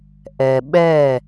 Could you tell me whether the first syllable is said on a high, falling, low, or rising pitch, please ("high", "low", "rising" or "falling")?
low